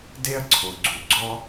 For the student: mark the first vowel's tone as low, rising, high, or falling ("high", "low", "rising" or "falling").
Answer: high